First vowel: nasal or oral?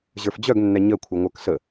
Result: oral